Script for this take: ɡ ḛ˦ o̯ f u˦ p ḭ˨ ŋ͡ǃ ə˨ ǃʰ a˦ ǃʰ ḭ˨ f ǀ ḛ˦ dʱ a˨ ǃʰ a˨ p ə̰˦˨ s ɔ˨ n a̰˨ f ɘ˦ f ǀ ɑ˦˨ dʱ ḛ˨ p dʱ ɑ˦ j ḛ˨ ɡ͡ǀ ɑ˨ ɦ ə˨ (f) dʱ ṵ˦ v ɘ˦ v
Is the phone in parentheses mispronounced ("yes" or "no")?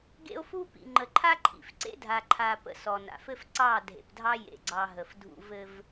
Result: no